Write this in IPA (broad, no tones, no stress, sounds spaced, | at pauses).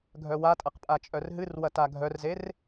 ɡʱ œ w a tʼ ɐ q pʼ a t͡ʃʼ œ r ɦ ɨ r w ɐ t a ɡʱ œ r z e r